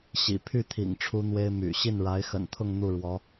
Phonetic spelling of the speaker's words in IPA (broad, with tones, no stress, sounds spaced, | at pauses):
ɕ ḭ˨˩ pʰ y˥˩ t̪ʰ ḭ˨˩ ŋ ʈ͡ʂʰ u˥ n̪ w e˥ ɪ̯ m y̰˨˩ ɕ i˥˩ n ɻ a˧˥ ɪ̯ x ə̰˨˩ n t̪ʰ ʊ˥˧ ŋ n̪ u˥˩ ɻ w ɔ˧˥